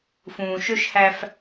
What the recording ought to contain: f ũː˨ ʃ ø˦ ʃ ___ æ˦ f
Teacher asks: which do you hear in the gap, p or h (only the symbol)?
h